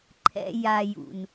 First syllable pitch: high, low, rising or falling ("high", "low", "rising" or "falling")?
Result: high